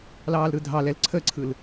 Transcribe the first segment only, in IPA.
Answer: l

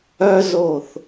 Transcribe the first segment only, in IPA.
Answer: œ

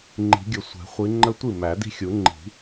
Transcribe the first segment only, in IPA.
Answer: ŋ͡ǃ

